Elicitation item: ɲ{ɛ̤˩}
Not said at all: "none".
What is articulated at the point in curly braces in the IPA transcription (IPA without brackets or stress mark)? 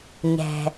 ɛ̤˩